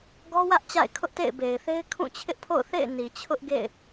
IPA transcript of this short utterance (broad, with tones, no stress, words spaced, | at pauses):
ɡɔ˦wä˦ʔ t͡ɕa̰˦˨ɪ̯kʰʊ˦ʔtḛ˦˨ɪ̯ be˨ɪ̯θe˦ɪ̯ kʰũ˦˨t͡ɕʰɪ˦ʔpʰo̰˦˨ʊ̯θḛ˦˨ɪ̯ ni˨t͡ɕʰʊ˦ʔɡḛ˦˨ɪ̯